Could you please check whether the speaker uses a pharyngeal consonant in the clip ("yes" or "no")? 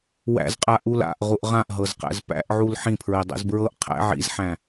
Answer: yes